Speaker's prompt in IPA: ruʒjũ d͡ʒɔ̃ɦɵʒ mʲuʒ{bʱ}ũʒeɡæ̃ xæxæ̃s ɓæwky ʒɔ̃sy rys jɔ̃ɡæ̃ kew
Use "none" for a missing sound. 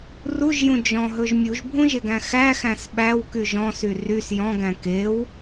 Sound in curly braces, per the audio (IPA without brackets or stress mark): bʱ